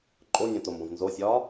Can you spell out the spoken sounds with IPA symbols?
ǃʼ o nʲ õ t o m b õ v n z o sʲ ɒː

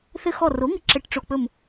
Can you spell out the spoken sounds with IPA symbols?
θ ɘ˧˩ x ɔ˧˩ r o˩˥ ŋ ɘ˧˩ ǁ ɘ˧˩ ʈ ʈ͡ʂ o˧˩ k͡p ɵ˧˩ m

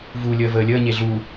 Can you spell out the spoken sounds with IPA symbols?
v uː lʲ əː v əː lʲ əː ɲ e ɮ u

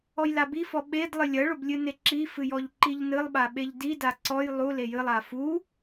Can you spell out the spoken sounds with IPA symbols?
ɔ j l a b i f ɔ ɓ e d lˠ ɨ lʲ ɐ ɭ o b lʲ ɨ n e ǁ i f ɨ j ɔ ʎ ǃ i ʎ n ɨ lˠ ɓ a ɓ e ʎ d i d a ǀ ɔ j lˠ u l e j ɨ lˠ a f u

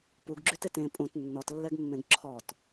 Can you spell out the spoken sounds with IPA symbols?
p u ɡ ɡ͡ǁ y t e t ẽ pʼ ũ t nː ɔ t lː ɛ ɡ mː ẽ ɡ ǁʰ ɔ t

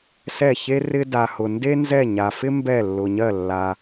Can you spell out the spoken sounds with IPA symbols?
s ɛ˥˨ ç e˥ r ɪ˥ d a˧ h ʊ˧ n d e˥ n z ɛ˥˨ ɲ a˧ f ɪ˥ m b ɛ˥˨ lː ʊ˧ ɲ ɜ˥˨ lː a˧

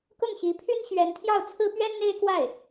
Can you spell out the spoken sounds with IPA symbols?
k ʊ˥˩ ŋ ɕ i˧˥ pʰ y˥ n ɕ ɥ ɛ˧˥ n t̪ʰ j ɑ˥˩ ʊ̯ t͡sʰ ɹ̩˥ p ɥ ɛ˥ n n̪ e˥ ɪ̯ k w a˥˩ ɪ̯

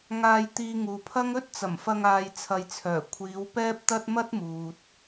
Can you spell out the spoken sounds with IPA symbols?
ŋ aː˧ j t̪ iː˧ ŋ uː˨ pʰ ɐ˥ ŋ ɵ˥ t̚ t͡s ɐ˨˩ m f ɐ˧ ŋ aː˧ j t͡sʰ ɐ˧ j t͡sʰ œː˨˩ kʷʰ iː˨˧ w p ɛː˥ p̚ t̪ ɐ˥ t̚ m ɐ˥ t̚ m uː˨ t̚

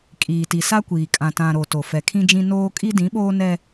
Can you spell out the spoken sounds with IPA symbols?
kʼ iː˨ t i˨ s a˦ kʷ iː˨ kʼ ã˨ t ã˨ ɾ o˨ t o˨ f ɛ˨ kʰ ĩ˦ d͡ʒ ĩ˦ n oː˦ kʼ i˦ d ĩ˨˦ ɓ oː˦ n ɛ˦

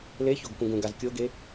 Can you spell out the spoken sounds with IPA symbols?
l e ç o ɡ k ũ ɡ ũ ɡ a z kʲ o ɡ e

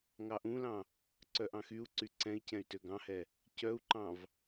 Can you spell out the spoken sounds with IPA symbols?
ŋ ɑ ʔ ũ l ɑ̃ | ǀ œ ʔ ɑ̃ x y u̯ ǀ y ǀ ɛ̃ i̯ c ɛ̃ y̯ t ø ɡ ɑ̃ h ɛ | c œ u̯ ǃ ɑ̃ v

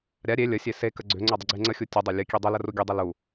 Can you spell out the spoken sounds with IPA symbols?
ɾʲ a ɾʲ e lʲ ə sʲ e s e k ə ɡ͡ǀ ʏ ŋ͡ǀ ʏ dˤ ə ɡ͡ǀ e ŋ͡ǀ ə xʲ u tʲ u dˤ ɛ lʲ ə kʲ e dˤ ʏ l ə r u ɡʲ ə dˤ ə l u

